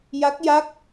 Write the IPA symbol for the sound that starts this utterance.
j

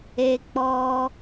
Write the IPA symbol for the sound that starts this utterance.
e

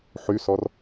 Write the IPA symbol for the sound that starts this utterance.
ħ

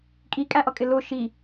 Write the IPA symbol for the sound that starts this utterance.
kʼ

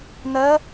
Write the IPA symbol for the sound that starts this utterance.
n̪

